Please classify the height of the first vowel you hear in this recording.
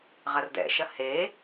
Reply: low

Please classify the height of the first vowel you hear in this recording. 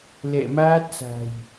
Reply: mid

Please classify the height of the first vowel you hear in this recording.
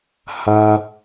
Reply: low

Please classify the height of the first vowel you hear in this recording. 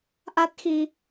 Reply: low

